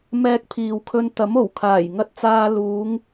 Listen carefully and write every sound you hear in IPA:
m ɛː˧ k̚ pʰ iː˨ w kʰ ɵ˧ n t̪ ɐ˨˥ m o˨˩ w kʰ aː˨˩ j ŋ ɐ˧ t̚ t͡s aː˧ l uː˨˧ ŋ

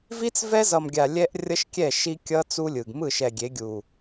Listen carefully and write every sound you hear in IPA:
v i˦ t͡s v ɛ˦ z ʌ˨ m ɡʲ a˨ lʲ ɛ˦ ʔ rʲ ʌ˦ ʃ kʲ ɛ˦˨ ʃ i˦ kʲ ʌ˦ t͡s u˦ lʲ ɯ˨ ɡ m ɯ˦˨ ʃ ɛ˨ ɡʲ e˨˦ ɡʲ u˨

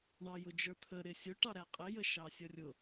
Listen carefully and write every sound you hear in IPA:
ɳ ɑ j ʊ d͡ʒ ə˞ t̪ʰ ə ɾ ɪ sʲ ʊ ʈ ɑ ɾ æ qʼ ɪ j ə ʃ ɑ sʲ ʌ rʲ ʊ

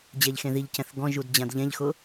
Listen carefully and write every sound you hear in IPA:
d͡ʑ ɛ ʎ x ẽ ð i ʎ c ɛ̃ θ ɡ ɔ̃ ʒ u d d͡ʑ ã d ʎ ɛ̃ ʎ x ʊ

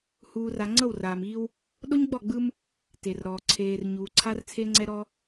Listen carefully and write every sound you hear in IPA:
h uː˨ r a˨ ŋ͡ǀ ɤ˦˨ w r aː˨ m iː˦ w | ɗ o˦ ɲ ɡ͡b ɔ˦˨ ɡ͡b ɯ˦ m | t e˨ r ɾ ɔː˨ ǀʰ eː˨ r ɲ uː˨ ǀʰ a˦ r t͡sʰ e˦ ŋ͡ǀ ɛ˦ ɾ ɔ˦

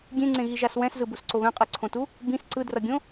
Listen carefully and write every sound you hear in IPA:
ɡʲ ẽ ŋ͡ǀ ẽ ɣ i ʒ a s w ɛ̃ s z ɯ b u s ǀ o β ɛ̃ qʼ ɯ ǀʰ õ t u | b ĩ s ǀ ɯ d r ʌ ɡʲ õ

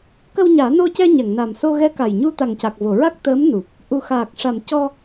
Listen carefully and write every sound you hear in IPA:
k ə˧ w ɲ aː˨˩˦ n o˧ c ɛ˧ ɲ ɛ˨˩˨ ŋ n a˨˩ m s o˧ ɣ ɛ˧˥ k a˨˩ j ɲ u˧ t̪ a˨˩ ŋ c a˨˩ k̚ v o˨˩˨ ɹ a˦˥ k̚ t̪ əː˧˥ m n u˨˩ p̚ | ʔ u˨˩ x aː˨˩ k̚ ʂ a˨˩˨ m c ɔ˧

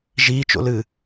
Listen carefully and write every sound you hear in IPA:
ʒ iː t͡ʃ o̰ l ɨ

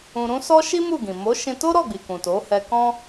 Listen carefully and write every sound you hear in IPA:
ũ˧ ɾ ũ˦ s ɔ˦ ʃ i˦ m u˦˨ ɡ ĩ˨ m o˨˦ ʃ ĩ˧ t o˦ ɾ ɔ˦˨ ɡ͡b i˨ k ũ˨ t o˨˦ h ɛ˧ k ɔ̃˦

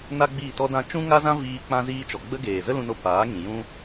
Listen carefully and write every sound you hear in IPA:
n a˦ ɡ͡b iː˦˨ t ɔ˦ d ã˧ t͡ʃ ũ˦ ŋ a˦ z ã˦ v iː˧ k͡p ã˧ z iː˧ t͡ʃ ɔ˨ ɡ͡b ə˦ ɡ eː˨ z ə˦ l ũ˧ n o˧ p aː˨˦ ŋ ĩ˨ j ũ˧

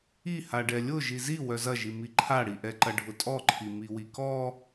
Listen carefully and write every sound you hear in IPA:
i h a ɖ ɛ lʲ ʊ ʒ i z i w œ z ɐ ʒ i m i ǃʰ a ɽ i ʔ ɛ ǃ ɐ ɖʱ ʊ tʼ ɔ ǃʰ i m i w i k ɔ

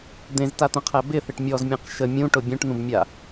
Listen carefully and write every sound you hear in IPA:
d̪ ẽ z t a t̪ ə̃ qʰ æ b ɪ θ ɪ ʈ mʲ ɔ z mʲ ẽ q ʃ ə mʲ ũ ʈ ʊ bʲ ũ ʈ n̪ ũ b mʲ a

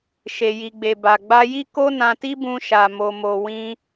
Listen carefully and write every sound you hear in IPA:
ʃ e˨ j i˨ ɡ͡b e˨ b a˨ ɡ͡b a˧ j i˦ k o˦ n ã˧ t i˦ b ũ˧ ʃ a˨ m o˨ m o˨ w ĩ˧

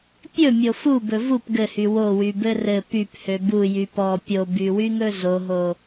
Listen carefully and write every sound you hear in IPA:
pʲ ɵ mʲ o f u b ɵ v u p ɡ ɘ h y w o w y b ɘ r ɘ p y p h ø b u j y p ɔ pʲ o b y w y ŋ ɵ z o ɦ o

